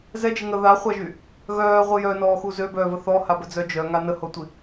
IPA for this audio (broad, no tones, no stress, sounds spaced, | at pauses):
z ɛ d͡ʒ e ŋ ə ð a χʷ a ʒ y | ɣ œː ʁʷ i j œ n ɔː x u z ø b œː v ə θ ɔ h a b ə d͡z œ d͡ʒ œ ŋ a n ə h o tʷ i